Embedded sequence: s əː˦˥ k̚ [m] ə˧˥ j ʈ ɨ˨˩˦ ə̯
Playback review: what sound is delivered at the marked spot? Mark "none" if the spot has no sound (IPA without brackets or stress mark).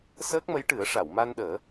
m